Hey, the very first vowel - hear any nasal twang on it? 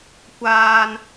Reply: no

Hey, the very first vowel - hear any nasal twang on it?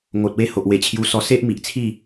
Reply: no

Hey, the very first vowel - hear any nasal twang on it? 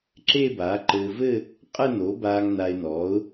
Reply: no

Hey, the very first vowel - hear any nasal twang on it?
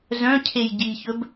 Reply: yes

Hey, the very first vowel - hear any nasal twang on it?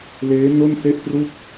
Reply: no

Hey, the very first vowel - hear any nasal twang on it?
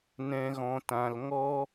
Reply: yes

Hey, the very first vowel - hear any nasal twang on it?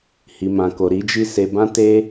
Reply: no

